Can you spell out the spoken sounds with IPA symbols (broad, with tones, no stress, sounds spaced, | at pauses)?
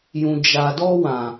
j ũ˨ d͡ʒ a˨ d ɔ˧ w ã˨